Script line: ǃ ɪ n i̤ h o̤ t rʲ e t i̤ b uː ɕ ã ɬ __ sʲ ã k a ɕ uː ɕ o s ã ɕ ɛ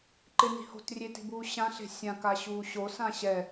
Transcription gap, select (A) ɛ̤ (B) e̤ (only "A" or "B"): B